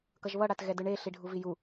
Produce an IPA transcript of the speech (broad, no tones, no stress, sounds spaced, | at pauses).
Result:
k ʌ ʒ β ʌ ɽ a t ɣ ɛ d ɯ ɳ e ɬ i ɖʱ u v i j u